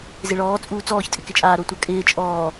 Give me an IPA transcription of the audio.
zɪɭɔː t͡sʼuːt͡sɔːç tʼɪkɪt͡ʃʼaː ɾotʷakʼɪː t͡ʃʼɔː

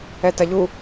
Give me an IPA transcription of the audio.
ɛtɐʎu

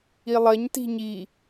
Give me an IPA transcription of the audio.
ilˠɐɲ ti̤ɲi

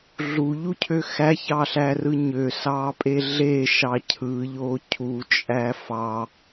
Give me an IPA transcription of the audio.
ɮuʎucʰø xæçɑɬærɯ ɲøsɑːpʼe ɮeʃɑ cʰɯʎo cʰut͡ʃʼæ fɑ

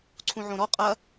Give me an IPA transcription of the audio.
ǀʰũʕõɾɔ qʼɐ

